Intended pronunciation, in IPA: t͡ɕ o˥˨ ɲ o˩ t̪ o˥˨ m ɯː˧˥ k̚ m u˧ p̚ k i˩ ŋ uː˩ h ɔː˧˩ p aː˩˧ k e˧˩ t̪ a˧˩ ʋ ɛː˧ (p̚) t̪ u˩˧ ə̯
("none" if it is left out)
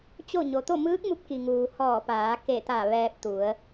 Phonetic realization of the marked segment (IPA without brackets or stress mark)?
p̚